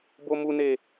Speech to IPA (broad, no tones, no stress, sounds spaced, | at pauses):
b o m u n e